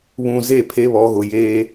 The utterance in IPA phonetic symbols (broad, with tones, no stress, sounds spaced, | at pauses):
β ũ˨ z e˦˨ pʰ e˦ β ɔ˨˦ ɣ ʊ˨ j eː˦